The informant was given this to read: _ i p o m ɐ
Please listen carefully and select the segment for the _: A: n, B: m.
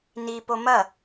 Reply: A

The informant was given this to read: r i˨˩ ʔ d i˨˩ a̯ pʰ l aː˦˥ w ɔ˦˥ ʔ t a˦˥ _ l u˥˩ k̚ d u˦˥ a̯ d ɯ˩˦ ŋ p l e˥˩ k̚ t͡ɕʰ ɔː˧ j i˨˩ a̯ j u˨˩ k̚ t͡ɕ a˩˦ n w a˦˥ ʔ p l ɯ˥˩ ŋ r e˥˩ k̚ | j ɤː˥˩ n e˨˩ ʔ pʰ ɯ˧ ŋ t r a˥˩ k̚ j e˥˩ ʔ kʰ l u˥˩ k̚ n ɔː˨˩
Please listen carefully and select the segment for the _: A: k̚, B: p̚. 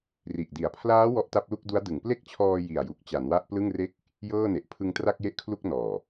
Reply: B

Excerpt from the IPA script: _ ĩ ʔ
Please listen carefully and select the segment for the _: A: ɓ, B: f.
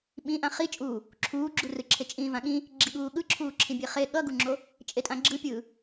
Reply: A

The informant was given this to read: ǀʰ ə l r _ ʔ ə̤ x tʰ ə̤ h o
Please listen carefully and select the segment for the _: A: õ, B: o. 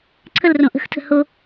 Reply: A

